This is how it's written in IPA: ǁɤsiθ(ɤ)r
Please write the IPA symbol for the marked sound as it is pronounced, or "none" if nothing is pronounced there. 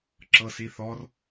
ɔ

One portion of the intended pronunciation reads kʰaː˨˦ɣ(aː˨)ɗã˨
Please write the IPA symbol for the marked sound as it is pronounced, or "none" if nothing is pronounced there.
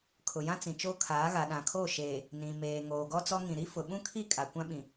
a˨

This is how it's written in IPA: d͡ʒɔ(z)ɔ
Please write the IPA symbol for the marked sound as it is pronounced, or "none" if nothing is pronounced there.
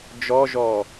ʒ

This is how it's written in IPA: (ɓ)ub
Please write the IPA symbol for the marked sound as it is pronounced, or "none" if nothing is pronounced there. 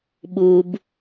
ɓ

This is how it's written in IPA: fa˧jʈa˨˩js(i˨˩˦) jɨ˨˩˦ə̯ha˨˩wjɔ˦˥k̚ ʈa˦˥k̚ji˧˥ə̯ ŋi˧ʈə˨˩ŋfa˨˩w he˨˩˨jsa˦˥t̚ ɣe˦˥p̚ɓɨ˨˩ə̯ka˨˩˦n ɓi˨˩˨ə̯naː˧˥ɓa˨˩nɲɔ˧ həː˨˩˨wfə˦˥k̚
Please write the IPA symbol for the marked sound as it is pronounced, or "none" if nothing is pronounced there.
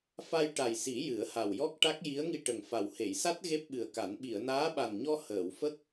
i˨˩˦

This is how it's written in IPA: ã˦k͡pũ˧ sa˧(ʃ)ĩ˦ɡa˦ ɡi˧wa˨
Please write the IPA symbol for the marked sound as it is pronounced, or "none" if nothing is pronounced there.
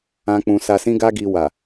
s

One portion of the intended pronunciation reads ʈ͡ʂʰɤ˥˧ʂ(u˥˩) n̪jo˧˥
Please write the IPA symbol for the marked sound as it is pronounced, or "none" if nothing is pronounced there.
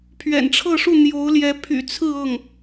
u˥˩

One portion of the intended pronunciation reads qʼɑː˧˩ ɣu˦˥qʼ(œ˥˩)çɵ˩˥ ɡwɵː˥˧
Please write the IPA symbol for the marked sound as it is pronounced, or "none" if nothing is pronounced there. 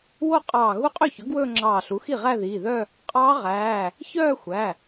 ø˥˩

